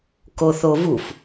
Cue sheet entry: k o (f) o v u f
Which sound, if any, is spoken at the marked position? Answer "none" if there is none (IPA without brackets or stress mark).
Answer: θ